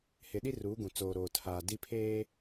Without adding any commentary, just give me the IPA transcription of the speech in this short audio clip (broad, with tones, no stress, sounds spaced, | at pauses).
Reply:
h ɪ˨ ɗ i˦ r uː˨˦ ɡ ũ˨ t͡s oː˨ ɾ oː˨ tʰ aː˨ d i˦ pʰ eː˦